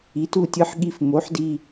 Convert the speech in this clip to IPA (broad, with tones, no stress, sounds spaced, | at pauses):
i˨˥ t u˦˨ tʲ ɯ˦ ħ ɠ i˦˨ f m o˨˥ ħ d i˦˨